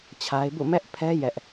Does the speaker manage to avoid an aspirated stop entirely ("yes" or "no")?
no